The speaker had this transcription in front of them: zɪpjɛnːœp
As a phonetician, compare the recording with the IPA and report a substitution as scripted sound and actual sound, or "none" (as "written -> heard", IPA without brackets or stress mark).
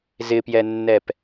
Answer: œ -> ɛ